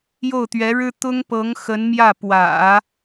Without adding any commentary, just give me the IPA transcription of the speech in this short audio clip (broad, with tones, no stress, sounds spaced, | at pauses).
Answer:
j o˥˩ ʊ̯ t̪ ɥ ɛ˧˥ ɻ ɻ̩˥ t̪ ʊ˥ ŋ p ɤ˧˥ ŋ x ə˧˥ n m j ä˥˩ p w ä̰˨˩˦